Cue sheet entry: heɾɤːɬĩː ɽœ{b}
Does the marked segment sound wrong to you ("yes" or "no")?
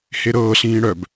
no